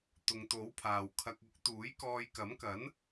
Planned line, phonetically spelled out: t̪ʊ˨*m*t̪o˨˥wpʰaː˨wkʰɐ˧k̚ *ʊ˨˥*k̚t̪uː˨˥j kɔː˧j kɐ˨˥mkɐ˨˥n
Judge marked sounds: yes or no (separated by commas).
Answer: no, yes